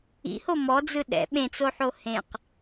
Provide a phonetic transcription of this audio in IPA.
ḭ h o m ɔ d͡z ɯ ɗ ɛ̰ ɓ ẽ t͡s o ħ o h ẽ q

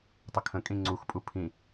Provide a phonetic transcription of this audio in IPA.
tˤ ə kʰ ə̃ kʼ ĩ ŋ͡ǀ u x pʼ u pʰ ĩ

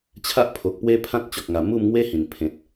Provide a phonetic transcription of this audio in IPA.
t͡ɕʰ a˦ ʔ pʰ o˨ k̚ p w e˦ pʰ ã˦ t̚ t͡ɕ ɔ˨ k̚ ŋ a˨˩ m u˥˧ m ŋ w e˦ h ĩ˨˩ n pʰ ẽ˨ t̚

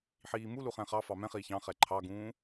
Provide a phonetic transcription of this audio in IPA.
ħ iː m u l u χ ɛ̃ χ ɑ f ɑ m ɛ̃ χ iː ç ɑ̃ χ ɛ ǃʰ ɑ ɡ ũː

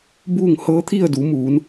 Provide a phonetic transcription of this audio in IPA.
b uː˥˨ ŋ h ɤː˧˥ t̪ʰ i˥˨ ə̯ d uː˩˧ m uː˩˧ n

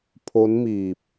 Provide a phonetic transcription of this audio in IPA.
pʰ o˦˥ n m iː˨˩ p̚

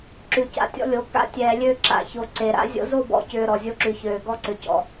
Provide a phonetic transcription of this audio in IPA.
ǁ ʉ˨ c a̰˨ tʲ ɔ̰˦ lʲ o˨˦ k a̰˦ tʲ ɛː˨ lʲ ø˦˨ ǁ a̰˨ ç o˨ ǀ e˨ ɾ a̰˦ zʲ o̰˦ z o˦˨ b ɔ̰˨ c ʏː˨ ɾ ɔ˨ zʲ o˦ ǁ ʉ˨ ç øː˨ ɡ ɔ˦ ǀ ʏ˨ c ɔ̰˨

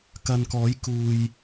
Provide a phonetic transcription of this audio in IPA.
k ɐ˨ n k ɔː˨˥ j k uː˨ j

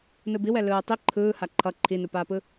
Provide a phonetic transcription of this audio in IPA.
n ɯ b i w ɛ l ɯː tˤ i ǃʰ ɯː h a ǃʰ ʌ ǃʰ i n u p aː p ɯ

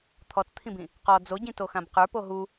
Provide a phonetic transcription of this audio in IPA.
t̪ʰ ɔ t͡s t̪ʰ ĩ b ĩ | q ɔ d͡z o ɟ ĩ t o x ã b q ə˞ p o ɦ u

